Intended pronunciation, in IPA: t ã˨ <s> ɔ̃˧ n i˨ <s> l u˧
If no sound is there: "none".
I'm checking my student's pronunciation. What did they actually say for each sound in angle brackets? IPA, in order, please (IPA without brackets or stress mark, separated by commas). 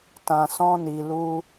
s, none